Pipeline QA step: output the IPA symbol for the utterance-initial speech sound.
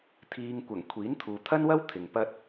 t̪ʰ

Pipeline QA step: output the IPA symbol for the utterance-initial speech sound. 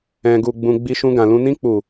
ɛ̃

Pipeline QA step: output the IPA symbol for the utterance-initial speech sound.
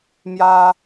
m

